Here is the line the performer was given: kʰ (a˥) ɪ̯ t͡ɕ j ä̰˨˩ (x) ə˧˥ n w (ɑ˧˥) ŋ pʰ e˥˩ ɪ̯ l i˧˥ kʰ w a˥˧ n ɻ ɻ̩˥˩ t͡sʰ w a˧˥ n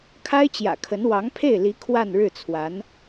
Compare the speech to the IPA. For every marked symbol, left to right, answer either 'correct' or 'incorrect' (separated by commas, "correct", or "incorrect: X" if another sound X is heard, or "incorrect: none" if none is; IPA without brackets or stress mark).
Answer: correct, incorrect: kʰ, correct